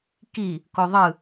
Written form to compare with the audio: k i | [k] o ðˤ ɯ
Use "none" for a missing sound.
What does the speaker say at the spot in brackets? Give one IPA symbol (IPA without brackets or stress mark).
k